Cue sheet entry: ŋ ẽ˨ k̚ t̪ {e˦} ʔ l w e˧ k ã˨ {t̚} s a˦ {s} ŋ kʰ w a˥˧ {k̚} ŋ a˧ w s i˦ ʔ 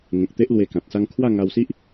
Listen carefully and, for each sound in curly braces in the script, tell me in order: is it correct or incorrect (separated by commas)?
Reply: correct, correct, incorrect, incorrect